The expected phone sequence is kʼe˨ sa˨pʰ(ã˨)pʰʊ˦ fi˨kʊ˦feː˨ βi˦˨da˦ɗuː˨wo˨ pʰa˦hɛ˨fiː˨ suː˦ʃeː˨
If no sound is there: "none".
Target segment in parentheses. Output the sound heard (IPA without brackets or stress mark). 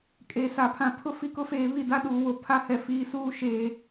ã˨